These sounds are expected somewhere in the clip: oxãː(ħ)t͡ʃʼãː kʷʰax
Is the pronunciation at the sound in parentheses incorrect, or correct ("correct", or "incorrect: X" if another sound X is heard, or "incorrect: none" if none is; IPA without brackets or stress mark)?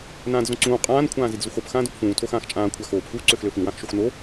incorrect: x